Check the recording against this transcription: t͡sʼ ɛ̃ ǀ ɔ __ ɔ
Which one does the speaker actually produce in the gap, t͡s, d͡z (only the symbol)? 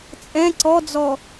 d͡z